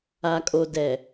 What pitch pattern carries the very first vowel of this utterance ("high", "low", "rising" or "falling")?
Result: low